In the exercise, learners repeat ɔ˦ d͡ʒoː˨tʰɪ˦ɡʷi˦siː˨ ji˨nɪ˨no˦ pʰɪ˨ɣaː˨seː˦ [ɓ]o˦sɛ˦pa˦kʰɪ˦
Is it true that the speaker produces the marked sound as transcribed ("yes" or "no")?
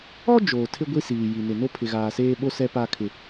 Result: yes